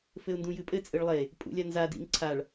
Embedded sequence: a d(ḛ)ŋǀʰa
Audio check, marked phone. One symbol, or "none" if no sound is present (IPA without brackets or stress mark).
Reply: ḭ